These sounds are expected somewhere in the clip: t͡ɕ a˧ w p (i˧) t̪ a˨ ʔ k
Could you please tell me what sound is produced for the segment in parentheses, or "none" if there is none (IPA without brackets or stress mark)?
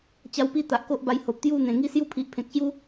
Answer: i˧